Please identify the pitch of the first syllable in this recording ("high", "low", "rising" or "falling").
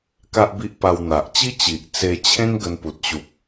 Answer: high